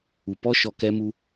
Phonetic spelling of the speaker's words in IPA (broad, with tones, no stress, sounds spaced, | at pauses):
u˨ p ɔ˦ ʃ ɔ˧ k ɛ˦ m u˦